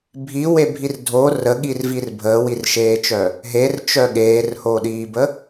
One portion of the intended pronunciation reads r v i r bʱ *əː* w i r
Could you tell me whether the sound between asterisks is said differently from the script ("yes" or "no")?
no